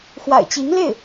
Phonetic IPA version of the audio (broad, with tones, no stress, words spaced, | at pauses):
xwa̰˨˩ɪ̯t͡ɕi˧˥ŋle˥˩ɪ̯